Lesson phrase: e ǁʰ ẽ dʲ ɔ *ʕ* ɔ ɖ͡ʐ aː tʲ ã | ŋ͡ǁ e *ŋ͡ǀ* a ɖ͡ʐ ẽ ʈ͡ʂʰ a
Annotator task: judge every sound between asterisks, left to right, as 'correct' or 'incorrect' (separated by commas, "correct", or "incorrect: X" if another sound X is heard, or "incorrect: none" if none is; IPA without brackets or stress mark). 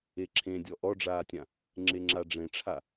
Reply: incorrect: ʔ, incorrect: ŋ͡ǁ